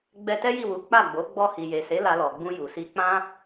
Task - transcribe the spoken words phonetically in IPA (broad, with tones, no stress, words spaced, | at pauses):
ɡ͡bɛ˧tɛ˦ji˦˨wu˨˦ k͡pa˦˨ɡ͡bo˨˦ ɡ͡bɔ˧hi˨je˨se˨˦ la˧lɔ˨ɡ͡bũ˧ju˨ si˧ k͡pã˦